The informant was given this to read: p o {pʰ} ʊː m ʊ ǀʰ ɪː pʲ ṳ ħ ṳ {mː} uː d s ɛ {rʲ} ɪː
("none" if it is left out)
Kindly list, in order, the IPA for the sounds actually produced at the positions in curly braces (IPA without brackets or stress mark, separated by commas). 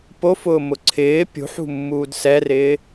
f, mː, r